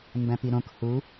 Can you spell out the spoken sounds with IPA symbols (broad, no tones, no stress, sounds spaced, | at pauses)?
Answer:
m b æ̃ p i ɾ õ k h u